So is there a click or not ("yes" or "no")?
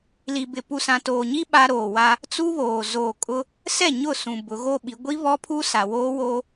no